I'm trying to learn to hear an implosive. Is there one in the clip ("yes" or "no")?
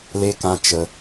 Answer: no